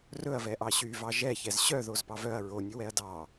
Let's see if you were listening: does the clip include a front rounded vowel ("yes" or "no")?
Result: yes